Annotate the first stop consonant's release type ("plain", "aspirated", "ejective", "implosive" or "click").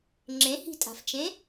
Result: click